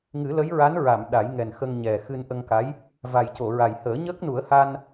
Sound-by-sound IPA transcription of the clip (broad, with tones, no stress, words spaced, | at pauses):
ŋɨ˨˩˦lə˧˥jɹa˧˥nɹa˨˩˨m ɗa˨˩˦jŋɛ˨˩nxə˧ŋ ɲɛ˨˩xɨ˧n ʔə˧ŋka˧˥j | va˨˩jco˨˩˨ɹa˨˩jhəː˨˩˦ ɲəː˦˥k̚nu˨˩˦ə̯ha˧n